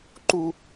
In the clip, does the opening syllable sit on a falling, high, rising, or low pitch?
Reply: high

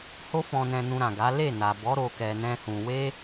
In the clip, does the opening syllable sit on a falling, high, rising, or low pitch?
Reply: high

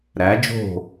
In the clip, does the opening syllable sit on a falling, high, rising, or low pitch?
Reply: rising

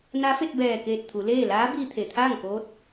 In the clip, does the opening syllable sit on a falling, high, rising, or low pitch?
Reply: rising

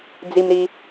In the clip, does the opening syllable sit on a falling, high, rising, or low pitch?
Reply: low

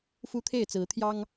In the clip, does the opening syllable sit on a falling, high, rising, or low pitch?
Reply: high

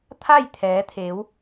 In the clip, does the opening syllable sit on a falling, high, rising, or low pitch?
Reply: falling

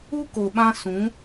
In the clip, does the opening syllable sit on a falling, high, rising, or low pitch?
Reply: high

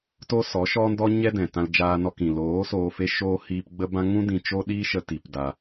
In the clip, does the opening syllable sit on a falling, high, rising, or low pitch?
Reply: high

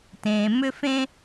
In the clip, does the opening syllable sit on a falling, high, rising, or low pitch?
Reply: low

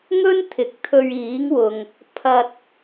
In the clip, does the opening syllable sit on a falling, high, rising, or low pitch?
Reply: high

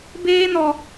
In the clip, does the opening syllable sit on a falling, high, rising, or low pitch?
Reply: high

